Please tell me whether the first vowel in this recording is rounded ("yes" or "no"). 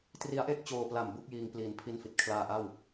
no